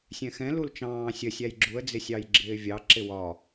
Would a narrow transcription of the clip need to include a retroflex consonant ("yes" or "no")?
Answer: no